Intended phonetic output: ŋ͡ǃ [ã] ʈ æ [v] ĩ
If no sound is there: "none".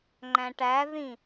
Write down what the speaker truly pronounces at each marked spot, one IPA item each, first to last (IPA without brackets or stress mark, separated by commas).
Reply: æ̃, ð